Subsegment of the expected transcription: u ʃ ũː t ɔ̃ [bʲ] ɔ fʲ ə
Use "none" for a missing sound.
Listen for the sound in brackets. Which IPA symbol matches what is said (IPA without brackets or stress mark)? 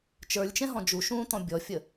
bʲ